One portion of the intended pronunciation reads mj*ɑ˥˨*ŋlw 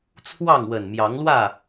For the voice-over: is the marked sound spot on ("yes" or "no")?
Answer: no